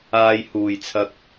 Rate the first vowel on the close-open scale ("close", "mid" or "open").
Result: open